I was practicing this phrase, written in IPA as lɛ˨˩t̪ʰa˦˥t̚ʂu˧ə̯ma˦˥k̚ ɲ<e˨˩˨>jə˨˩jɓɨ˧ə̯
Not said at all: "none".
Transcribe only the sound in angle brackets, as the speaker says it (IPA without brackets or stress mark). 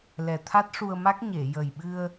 e˨˩˨